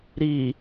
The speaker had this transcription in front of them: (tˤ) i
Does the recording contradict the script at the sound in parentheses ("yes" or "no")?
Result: yes